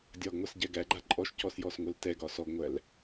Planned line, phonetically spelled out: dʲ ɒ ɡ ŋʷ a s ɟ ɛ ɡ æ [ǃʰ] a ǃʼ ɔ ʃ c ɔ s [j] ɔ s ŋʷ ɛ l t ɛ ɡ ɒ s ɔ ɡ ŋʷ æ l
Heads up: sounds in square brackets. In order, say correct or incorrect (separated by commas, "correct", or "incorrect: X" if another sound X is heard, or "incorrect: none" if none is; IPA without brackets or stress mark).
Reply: incorrect: ɡ͡ǃ, correct